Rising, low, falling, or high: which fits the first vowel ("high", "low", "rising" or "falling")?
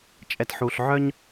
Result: low